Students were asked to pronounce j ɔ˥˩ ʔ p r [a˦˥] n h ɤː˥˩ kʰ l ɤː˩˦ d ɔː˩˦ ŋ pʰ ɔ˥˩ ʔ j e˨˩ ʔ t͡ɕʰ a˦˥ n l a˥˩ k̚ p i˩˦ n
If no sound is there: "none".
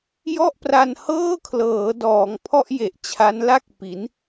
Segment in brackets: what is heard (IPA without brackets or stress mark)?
a˧